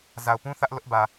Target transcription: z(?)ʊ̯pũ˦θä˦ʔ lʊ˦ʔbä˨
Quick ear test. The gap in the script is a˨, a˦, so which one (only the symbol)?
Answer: a˨